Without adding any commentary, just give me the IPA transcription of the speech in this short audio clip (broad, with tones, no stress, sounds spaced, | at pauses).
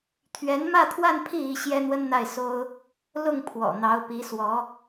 t̪ʰ ɥ ɛ˧˥ n m ä˥˧ t̪ʰ w a˥˧ n pʰ i˥˩ i˥ ɕ j ɛ˥ n̪ w ə˥ n n̪ a˥˩ ɪ̯ s o˥ ʊ̯ | l ʊ˥˩ ŋ pʰ w ɔ̰˨˩ n̪ ɑ˧˥ ʊ̯ p i˧˥ s w ɔ˧˥